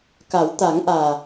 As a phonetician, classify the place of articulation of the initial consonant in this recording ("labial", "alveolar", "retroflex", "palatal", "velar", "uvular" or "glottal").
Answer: velar